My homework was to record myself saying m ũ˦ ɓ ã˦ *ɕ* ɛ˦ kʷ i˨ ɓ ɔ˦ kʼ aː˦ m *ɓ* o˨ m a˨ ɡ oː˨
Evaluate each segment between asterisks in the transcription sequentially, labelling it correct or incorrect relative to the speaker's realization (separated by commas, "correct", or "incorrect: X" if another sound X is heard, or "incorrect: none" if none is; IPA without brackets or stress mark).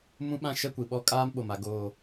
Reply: incorrect: ʃ, correct